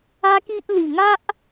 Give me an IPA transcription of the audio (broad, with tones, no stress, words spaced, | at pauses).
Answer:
a˦ki˦ʔ li˨˩ŋa˦ʔ